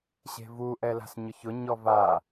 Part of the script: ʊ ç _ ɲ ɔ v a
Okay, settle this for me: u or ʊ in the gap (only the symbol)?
ʊ